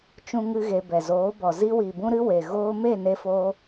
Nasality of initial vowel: nasal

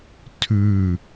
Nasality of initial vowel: oral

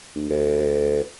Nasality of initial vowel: oral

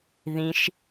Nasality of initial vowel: nasal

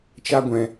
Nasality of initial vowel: oral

